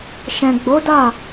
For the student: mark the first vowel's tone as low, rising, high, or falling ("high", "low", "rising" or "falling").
low